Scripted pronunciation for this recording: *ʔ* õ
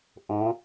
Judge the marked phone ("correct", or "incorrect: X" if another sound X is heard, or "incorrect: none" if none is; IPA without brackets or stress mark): correct